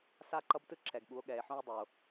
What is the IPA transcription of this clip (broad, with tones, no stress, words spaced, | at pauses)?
sa˦ǃʌ˦btɯ˦ǁɛ˨ɡ ɠu˨˦o̯ɠɛː˨e̯ħõ˦e̯dˤu˨o̯